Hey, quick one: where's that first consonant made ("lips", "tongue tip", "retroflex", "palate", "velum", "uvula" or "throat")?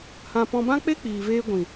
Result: throat